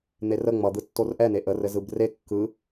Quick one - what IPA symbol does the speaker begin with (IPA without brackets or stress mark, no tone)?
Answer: n̪